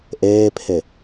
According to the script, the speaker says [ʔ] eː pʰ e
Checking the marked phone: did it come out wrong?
no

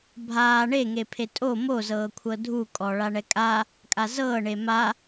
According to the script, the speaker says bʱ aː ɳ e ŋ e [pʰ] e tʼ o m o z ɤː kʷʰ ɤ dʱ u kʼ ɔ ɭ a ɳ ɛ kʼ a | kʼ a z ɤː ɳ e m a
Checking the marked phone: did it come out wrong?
no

